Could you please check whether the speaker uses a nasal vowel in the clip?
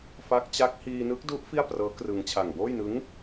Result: no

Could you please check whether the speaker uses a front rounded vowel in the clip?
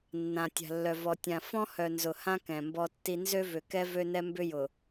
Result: yes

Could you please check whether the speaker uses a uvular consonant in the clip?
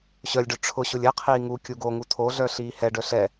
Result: yes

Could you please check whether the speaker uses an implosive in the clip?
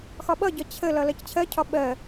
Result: yes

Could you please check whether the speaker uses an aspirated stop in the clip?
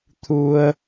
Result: yes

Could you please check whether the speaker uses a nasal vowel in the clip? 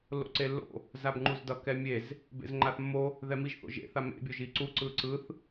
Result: no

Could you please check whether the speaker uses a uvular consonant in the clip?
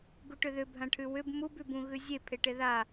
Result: no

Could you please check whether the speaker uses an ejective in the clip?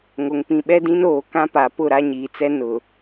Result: no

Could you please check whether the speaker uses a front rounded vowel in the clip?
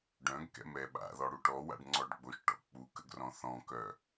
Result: yes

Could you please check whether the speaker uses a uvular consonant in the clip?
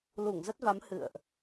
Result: no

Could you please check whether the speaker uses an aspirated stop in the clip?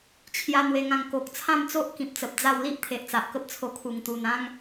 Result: yes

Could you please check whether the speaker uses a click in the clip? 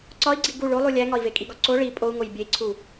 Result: yes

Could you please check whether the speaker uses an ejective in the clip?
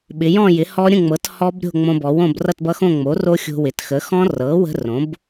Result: no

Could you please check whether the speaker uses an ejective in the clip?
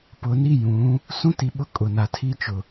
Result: yes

